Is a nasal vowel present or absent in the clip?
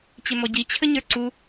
absent